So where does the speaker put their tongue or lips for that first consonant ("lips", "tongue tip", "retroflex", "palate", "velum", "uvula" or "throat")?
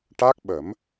retroflex